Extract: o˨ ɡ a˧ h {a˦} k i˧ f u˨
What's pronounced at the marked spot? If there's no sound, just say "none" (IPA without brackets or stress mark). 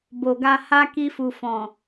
a˦